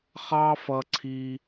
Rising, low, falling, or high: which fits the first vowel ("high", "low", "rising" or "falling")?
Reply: high